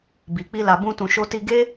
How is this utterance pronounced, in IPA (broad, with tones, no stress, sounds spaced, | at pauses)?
b i˨ k͡p i˧ l a˨ b ũ˧ t ũ˨ ʃ o˧ t i˧ ɡ e˦